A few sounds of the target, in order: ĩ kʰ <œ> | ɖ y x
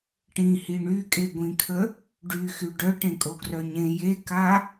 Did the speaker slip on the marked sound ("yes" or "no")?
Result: yes